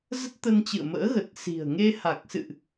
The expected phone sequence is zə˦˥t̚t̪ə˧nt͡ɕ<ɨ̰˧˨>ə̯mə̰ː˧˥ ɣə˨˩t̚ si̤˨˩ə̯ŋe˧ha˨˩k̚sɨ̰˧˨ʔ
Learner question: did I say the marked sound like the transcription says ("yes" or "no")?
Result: yes